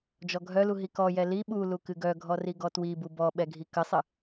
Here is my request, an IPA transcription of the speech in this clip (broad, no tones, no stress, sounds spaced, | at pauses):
d͡ʒ ɔ ɡʱ œ l u ɦ i k ɔ j ɛ l i ɓ u l u k ɨ ɡ œ ɡʱ ɔ r i ɡ ɔ t w i b u b ɔ ɓ ɛ ɡʱ i k ə sˤ ə